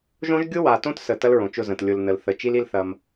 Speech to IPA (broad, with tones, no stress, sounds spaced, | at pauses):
ʒ õ˦ ʒ ɡʲ ʊ˦ w a˨ t õ˦ t s ə˨ t ɐ˦ l ɹ õ˨ t͡ʃ ʊ˦˨ z ə̃˨ t lʲ ʊ˨ l n ə˨ l θ ə˨ t͡ʃ i˦ l i˦ l θ ɐ˦ m